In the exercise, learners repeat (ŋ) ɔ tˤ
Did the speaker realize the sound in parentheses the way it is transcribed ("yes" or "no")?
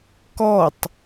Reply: no